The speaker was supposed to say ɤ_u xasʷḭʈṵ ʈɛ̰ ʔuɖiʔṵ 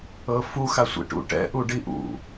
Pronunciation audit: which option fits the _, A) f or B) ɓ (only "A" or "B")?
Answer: A